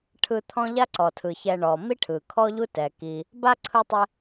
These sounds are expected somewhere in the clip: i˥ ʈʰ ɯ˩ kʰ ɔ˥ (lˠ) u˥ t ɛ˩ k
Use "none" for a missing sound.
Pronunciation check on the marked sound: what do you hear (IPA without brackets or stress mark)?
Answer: ʎ